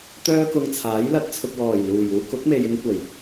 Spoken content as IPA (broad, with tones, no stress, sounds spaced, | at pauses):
t̪ œː˥ k ʊ˧ ŋ t͡sʰ aː˨˥ j l ɐ˨ t̚ t͡sʰ ʊ˨ k̚ w ɔː˨˩ j l uː˨˩ j uː˧ k ʊ˨˥ k̚ m e˨ j ɪ˧ ŋ kʷ ɐ˨˩ j